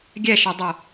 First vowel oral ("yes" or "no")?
yes